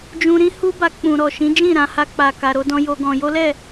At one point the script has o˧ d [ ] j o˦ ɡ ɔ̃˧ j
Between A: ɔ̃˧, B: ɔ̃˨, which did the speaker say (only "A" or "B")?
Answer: A